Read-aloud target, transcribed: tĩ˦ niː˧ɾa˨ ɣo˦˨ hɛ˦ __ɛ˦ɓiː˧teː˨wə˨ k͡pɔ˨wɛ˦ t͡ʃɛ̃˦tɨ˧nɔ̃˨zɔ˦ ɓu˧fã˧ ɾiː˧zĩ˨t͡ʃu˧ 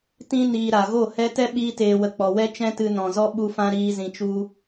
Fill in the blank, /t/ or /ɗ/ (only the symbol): t